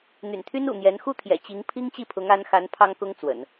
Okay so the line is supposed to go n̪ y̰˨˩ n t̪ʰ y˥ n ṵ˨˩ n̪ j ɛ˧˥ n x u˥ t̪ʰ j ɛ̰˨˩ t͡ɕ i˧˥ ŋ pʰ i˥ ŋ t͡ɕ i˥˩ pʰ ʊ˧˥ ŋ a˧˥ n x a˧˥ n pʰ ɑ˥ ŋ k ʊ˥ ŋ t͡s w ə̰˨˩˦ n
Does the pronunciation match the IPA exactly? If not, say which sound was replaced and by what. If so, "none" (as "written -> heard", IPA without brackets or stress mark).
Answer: u˥ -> u˥˩